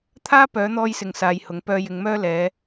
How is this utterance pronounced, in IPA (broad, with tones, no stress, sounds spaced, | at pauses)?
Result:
t̪ʰ aː˥ p œː˨˥ n̪ ɔː˧ j s ɪ˨ ŋ s aː˧ j h ʊ˨˥ ŋ p œː˧ j ɪ˨˧ ŋ m œː˥ l ɛː˨˧